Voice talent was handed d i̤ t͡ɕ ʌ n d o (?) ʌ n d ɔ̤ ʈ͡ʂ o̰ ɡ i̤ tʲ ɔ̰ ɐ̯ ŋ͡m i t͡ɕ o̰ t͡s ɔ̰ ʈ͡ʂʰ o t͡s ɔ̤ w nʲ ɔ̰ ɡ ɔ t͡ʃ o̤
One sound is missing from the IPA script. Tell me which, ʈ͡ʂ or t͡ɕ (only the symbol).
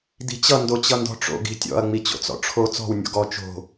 t͡ɕ